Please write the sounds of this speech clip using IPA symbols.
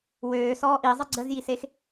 w øː s ɔː ʔ i zˤ ə ɡ͡ǀ ə z j i s e x

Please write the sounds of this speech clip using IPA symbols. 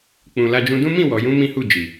k͡p ũ˨ l a˧ d͡ʒ ũ˧ d ũ˦ m ĩ˦˨ w ɔ˨ j ũ˨˦ m ĩ˦ h u˦˨ d͡ʒ i˨

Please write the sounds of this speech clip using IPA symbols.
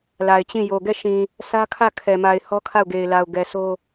l a˨ ɪ̯ t͡ɕ ĩ˦˨ j o˨ ɡ ɛ˦˨ ʃ ĩ˨ | s ä˦ kʰ ä˦˨ kʰ ɛ˨ m a˨ ɪ̯ h ɔ˦ kʰ a˦˨ ʊ̯ ɡ e˨ ɪ̯ l a˨ ʊ̯ ɡ ɛ˨ s o˦

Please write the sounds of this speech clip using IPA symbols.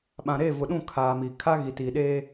ɓ ã˨ ɾ eː˦˨ v ʊ˨ ɗ ũ˦˨ kʰ aː˨ m i˨ kʰ a˦ ɣ i˨ t i˨ ɗ eː˦

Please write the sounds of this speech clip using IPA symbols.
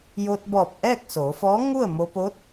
j o˧ t̚ b ɔː˧˩ p̚ ʔ ɛː˥˨ k̚ s oː˩˧ f ɔː˧˥ ŋ u˥˨ ə̯ m o˧ p o˧˥ t̚

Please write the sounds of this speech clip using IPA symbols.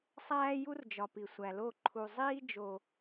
sˤ æː˦ j u˦ r d͡ʒ ɒ˨ p i˨ sʷ æ˨ l o˦˨ ǃʰ u˨ zˤ iː˦ d͡ʒ o˦

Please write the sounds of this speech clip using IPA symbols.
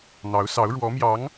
n̪ ɑ˧˥ ʊ̯ s ɑ˧˥ ʊ̯ ɻ w ɔ˧˥ m j ɑ˧˥ ŋ

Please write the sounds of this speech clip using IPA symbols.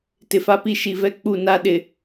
t ɪ˨ f a˦ p i˦ ʃ i˨ v ɛ˦ k͡p u˦˨ n a˦ ɗ ɪ˨

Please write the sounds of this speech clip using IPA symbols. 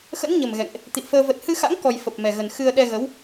x ə̰˧˥ n ɲ ə˨˩ m ɣ ɛ̰˧˨ ŋ ʔ | t̪ ḭ˧˨ ə̯ f əː˧ v ə˨˩ t̚ h ɨ˧ x a̰˧˥ ŋ k ɔ˧ j f ə˨˩ p̚ m ɛ˨˩ ɣ ə˨˩ n x ɨ˧ ə̯ ɗ ɛ˧ ɣ ə˨˦ w

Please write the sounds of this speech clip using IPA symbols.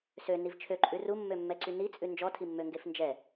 s ø n i v t͡ʃʰ ø ǃʼ ʉ r u mː ø mː ɛ ǀ y n i t͡sʼ ʉ n d͡ʒ ɔ tʰ i mː ø ŋ ɡ e f n d͡ʒ ɛ

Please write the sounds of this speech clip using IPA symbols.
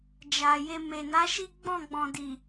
d͡ʒ a˨ j e˧ m e˨ n a˨˦ ʃ i˦ ɡ͡b ɔ̃˦˨ ɡ͡b ɔ̃˨ d i˨

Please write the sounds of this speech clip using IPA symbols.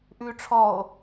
ʔ ʉː ʈ͡ʂʰ ɔ o̯

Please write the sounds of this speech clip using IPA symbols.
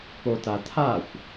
p o t a tʰ a xʷ

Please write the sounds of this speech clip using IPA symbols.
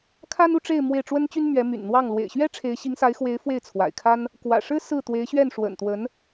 kʰ a˥ n u˥˧ ʈ͡ʂ e˥˧ ɪ̯ m w e˥˩ ɪ̯ ʈ͡ʂ w ə˥ n t͡ɕ y˥ n m ɥ ɛ˧˥ m y̰˨˩ n n̪ w ɑ˥˩ ŋ l w ḛ˨˩ ɪ̯ ɕ ɥ ɛ˥ ʈ͡ʂʰ e˧˥ ɪ̯ ɕ i˧˥ ŋ s a˧˥ ɪ̯ x w e˧˥ ɪ̯ f w e˥˩ ɪ̯ t͡sʰ w a̰˨˩ ɪ̯ kʰ a˥ n | k w ä̰˨˩ ʂ ɻ̩˥ s ɹ̩˥˩ t̪ w e˧˥ ɪ̯ ɕ ɥ ɛ˥˩ n ʂ w ə̰˨˩ n t̪ w ə˧˥ n

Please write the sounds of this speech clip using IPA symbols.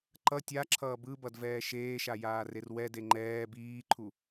ǃ ʌ tʲ a ǁʰ ʌː b ɯ b ʌ d v ɛː ʃ eː ʃ a j aː r e r w ɛ d e ŋ͡ǃ ɛː b iː ǃʰ u

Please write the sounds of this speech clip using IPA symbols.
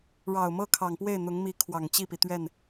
ɻ ɑ˨˩ ʊ̯ m ɤ˥˩ kʰ ɑ˨˩ ŋ p w e˥˩ ɪ̯ n̪ ʊ˧˥ ŋ m i˧˥ kʰ w ɑ˨˩ ŋ t͡ɕ i˥˩ p i˩ t̪ ɥ ɛ˥˩ n

